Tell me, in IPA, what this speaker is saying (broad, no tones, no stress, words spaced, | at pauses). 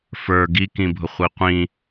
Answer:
fə˞ ɡi kĩbʱʊχʷiqʷĩ